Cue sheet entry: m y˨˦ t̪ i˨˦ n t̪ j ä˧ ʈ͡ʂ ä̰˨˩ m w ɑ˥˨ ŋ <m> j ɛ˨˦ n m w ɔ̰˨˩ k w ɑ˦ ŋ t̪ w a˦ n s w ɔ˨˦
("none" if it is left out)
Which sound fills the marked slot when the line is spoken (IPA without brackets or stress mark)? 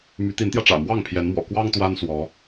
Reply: pʰ